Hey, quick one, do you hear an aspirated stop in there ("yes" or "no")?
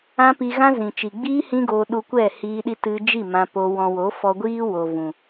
no